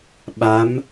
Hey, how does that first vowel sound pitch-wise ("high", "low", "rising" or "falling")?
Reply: rising